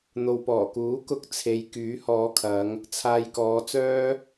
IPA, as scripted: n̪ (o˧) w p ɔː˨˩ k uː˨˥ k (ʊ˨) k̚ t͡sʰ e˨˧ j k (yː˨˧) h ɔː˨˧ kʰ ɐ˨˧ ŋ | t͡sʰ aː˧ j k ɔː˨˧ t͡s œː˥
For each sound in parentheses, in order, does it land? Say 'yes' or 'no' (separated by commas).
no, no, no